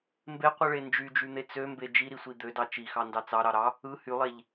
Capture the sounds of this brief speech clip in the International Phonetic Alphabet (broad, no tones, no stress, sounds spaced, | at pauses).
m b e qʷ ɯ ɭ e n d͡ʒ y d͡ʒ y n̪ e t͡s ø m b e d͡ʒ i ɾ i sʷ i d̪ ø d ɑ t͡ʃ i x ɑ n d ɑ t͡s ɑ ɾ ɑ ɾ ɑ | ɯ h y lˠ e ʎ